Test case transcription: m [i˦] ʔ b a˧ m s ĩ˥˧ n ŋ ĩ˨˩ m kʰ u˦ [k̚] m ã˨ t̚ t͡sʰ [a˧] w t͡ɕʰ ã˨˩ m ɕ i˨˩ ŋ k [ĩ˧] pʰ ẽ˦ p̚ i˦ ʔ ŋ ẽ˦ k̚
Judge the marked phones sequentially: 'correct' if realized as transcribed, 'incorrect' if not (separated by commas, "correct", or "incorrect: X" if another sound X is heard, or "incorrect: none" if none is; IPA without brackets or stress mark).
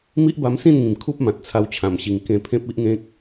correct, incorrect: p̚, correct, incorrect: ẽ˧